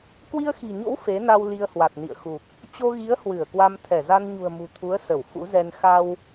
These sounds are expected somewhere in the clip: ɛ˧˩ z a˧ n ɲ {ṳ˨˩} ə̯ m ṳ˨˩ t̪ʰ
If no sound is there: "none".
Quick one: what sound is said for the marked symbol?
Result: ṳ˨˩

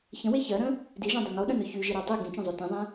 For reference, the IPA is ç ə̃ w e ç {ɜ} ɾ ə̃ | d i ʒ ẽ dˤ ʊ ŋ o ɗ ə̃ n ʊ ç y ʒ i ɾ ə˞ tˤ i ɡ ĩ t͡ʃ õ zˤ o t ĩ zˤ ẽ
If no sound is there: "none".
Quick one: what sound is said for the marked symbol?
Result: ɜ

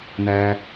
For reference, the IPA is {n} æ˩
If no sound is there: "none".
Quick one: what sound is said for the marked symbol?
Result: n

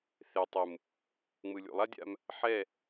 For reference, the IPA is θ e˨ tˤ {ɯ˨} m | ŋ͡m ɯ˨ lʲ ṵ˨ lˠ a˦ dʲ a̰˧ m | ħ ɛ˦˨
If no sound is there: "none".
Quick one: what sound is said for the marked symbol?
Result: ɯ˨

